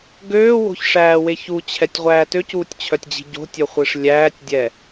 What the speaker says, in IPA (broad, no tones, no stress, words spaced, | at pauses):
ɡøːwo̤çʂæːweç ut͡ɕʰɛtʲʁʷæː tøcuːtʲt͡ɕʰœtʲd͡ʑi̤ ɟo̤tʲœχʷiʂ lʲæːtʲdʲɛ